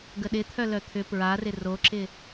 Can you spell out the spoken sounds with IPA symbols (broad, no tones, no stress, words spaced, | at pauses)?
ɡəɗɪt̪ʰœ lœt̪ʰʏ pɹarɪ roǁɪ